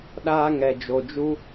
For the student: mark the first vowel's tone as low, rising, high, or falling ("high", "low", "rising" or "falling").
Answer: high